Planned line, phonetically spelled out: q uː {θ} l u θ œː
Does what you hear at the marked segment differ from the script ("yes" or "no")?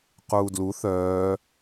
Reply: yes